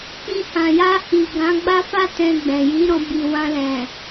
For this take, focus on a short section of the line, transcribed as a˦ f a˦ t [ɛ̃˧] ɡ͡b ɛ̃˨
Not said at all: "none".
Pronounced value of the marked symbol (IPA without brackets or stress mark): ɛ̃˧